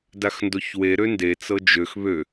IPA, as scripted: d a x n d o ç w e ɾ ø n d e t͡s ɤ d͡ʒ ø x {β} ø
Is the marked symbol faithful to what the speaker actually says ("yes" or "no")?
yes